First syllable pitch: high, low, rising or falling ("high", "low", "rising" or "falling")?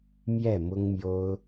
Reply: falling